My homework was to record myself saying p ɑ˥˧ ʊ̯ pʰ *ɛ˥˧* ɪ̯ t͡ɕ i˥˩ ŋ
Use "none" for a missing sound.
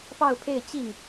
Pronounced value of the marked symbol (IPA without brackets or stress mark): e˥˧